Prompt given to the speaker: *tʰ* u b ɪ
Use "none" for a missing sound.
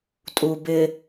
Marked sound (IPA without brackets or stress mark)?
tʼ